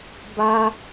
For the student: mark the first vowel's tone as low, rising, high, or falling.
high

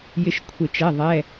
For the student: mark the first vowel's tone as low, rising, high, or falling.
falling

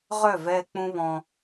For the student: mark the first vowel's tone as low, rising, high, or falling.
falling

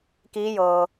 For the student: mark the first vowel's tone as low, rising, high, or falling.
rising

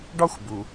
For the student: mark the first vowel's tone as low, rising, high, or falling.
high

